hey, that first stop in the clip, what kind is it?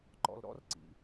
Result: click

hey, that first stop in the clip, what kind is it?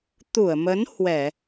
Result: plain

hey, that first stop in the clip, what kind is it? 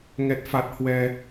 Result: plain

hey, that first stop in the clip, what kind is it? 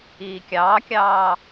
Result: plain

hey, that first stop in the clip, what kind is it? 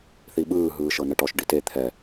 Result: implosive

